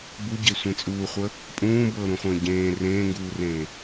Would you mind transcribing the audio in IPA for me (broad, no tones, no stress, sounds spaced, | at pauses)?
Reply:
b u ɟ e sʷ ẽ t͡sʼ uː χʷ ə | pʼ ũː b ɤː ɾ ũ χʷ ə̃ː ɟ ẽː r ẽː ŋ ɡ uː r ẽː